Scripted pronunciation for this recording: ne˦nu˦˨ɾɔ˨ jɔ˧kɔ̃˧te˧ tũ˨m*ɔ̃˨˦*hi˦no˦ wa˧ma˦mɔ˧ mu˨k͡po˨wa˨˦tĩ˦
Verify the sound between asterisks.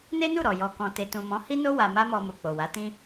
correct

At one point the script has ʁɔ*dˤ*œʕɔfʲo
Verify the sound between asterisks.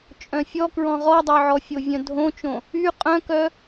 correct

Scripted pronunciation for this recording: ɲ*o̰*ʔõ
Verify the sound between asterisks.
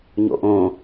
correct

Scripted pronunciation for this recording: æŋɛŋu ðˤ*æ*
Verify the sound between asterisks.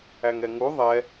incorrect: ɛ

